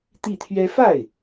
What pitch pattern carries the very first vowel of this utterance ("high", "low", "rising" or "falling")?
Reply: falling